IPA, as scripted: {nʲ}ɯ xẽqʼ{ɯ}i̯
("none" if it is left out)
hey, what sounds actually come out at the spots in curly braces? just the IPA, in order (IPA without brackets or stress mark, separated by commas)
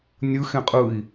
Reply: nʲ, ɯ